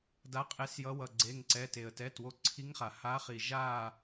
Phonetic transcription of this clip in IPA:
da˨˦qʼe˨˦sjʌ˨˦ wʌ˩˧˩ɡ͡ǀe˩˧˩ŋǀɛ˩˧˩ te˩ə̯tɛ˩˧˩two˨˦ ǀʰi˨˦ŋχa˩ha˨˦χi˩ ʒa˦˨

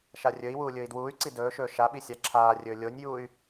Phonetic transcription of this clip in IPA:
ʃarʲɵi̯wuː lʲɵːi̯dwuːy̯ǀi dɵːʃɵː ʃaɓi sʲaǁʰaːrʲɵː lʲonʲjuːy̯

